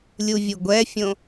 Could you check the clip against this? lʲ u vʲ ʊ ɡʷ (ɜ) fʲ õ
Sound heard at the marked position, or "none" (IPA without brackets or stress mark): ɛ